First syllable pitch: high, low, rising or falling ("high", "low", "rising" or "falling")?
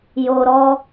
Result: low